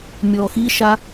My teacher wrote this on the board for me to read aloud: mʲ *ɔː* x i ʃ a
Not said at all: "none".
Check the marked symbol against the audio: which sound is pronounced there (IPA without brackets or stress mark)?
ɔː